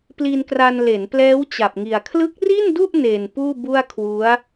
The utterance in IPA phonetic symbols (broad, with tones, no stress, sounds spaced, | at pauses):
p l i˧ n k r a˧ n l e˩˦ n p l ɛː˦˥ w t͡ɕ a˨˩ p̚ ŋ i˨˩ a̯ kʰ l ɯ˦˥ k̚ r i˥˩ n d u˥˩ ʔ n e˨˩ n p uː˥˩ b u˥˩ a̯ kʰ w u˦˥ a̯